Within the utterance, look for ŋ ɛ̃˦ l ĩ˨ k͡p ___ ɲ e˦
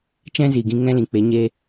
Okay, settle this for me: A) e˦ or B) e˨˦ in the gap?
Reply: B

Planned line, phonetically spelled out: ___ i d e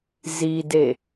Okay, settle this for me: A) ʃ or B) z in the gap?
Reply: B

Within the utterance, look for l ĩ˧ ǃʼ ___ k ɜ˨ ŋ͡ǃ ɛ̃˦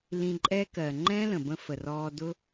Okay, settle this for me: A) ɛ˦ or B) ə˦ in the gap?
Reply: A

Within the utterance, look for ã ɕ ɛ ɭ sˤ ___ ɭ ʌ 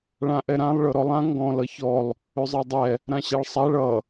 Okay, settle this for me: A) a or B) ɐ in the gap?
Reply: A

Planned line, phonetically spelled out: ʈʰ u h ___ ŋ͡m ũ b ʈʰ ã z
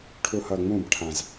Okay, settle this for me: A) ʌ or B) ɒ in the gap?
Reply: A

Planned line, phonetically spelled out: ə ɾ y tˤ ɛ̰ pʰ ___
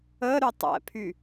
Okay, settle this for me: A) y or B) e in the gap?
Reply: A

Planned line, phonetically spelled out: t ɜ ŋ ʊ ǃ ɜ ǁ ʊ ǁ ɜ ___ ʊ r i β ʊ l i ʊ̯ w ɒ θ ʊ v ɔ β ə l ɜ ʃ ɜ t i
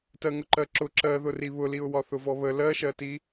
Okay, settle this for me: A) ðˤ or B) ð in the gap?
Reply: B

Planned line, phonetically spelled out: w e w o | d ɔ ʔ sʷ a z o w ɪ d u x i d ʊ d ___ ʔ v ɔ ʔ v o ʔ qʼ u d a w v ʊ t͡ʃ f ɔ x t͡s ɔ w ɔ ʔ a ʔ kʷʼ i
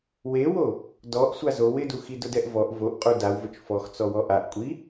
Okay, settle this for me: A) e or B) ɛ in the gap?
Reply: B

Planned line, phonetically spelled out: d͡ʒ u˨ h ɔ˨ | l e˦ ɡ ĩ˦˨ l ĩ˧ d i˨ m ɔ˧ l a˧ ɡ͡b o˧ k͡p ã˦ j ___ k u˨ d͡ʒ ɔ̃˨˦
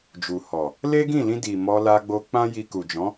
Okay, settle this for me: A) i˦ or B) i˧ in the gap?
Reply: B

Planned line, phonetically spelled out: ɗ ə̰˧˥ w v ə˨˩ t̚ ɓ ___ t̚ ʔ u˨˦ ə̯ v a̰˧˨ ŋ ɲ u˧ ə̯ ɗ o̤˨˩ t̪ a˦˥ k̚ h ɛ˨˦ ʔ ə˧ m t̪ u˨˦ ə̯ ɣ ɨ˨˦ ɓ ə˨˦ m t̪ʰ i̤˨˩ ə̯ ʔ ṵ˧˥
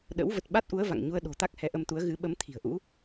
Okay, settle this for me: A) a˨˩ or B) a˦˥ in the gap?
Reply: B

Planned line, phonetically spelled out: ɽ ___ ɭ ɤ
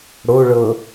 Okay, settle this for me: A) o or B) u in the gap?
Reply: A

